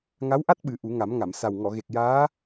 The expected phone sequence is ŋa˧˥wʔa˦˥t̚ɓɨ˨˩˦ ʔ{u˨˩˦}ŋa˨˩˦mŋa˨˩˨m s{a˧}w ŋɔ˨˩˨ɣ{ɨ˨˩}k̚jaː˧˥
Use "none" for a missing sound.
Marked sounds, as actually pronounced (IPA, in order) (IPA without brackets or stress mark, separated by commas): u˨˩˦, a˨˩, e˨˩